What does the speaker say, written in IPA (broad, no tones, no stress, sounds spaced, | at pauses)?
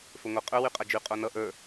f ɵ ŋʷ ʌ qʼ ɵ w y qʼ a d͡ʒ y qʼ o n ʌ ʔ ə˞